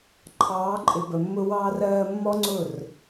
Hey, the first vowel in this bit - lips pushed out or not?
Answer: no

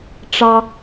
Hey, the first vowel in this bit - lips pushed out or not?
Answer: no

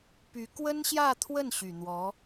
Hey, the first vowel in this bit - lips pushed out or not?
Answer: yes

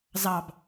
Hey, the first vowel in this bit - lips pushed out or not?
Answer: no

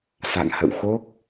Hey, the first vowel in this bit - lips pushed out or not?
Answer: no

